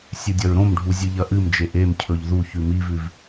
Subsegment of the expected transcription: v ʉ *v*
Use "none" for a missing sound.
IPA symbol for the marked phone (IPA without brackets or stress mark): v